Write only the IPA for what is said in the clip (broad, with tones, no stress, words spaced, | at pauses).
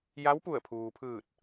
ja˧˥wpu˧˩ə̯pʰuː˩pʰɯː˧˩t̚